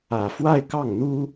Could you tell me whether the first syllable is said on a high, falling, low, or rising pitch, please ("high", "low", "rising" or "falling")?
low